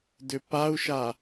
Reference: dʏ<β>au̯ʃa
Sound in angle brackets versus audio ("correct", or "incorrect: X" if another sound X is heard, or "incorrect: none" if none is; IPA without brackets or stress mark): incorrect: p